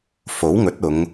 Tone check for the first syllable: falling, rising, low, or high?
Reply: rising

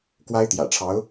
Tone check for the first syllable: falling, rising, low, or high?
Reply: high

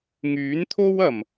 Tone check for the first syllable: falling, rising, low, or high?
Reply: rising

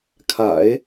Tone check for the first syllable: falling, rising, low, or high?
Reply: low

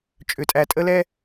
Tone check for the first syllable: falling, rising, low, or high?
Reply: low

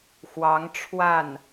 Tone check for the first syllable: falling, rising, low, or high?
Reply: rising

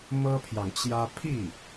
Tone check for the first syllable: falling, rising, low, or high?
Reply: high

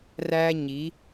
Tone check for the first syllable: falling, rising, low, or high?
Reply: high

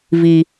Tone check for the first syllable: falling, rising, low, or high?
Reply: low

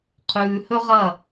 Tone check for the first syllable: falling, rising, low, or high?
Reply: low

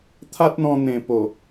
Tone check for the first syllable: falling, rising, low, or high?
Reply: high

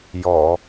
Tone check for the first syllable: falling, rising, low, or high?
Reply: low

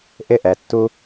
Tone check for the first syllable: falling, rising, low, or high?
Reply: high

